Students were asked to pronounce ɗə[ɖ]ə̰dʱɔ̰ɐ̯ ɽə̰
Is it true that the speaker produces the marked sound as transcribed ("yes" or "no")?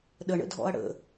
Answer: no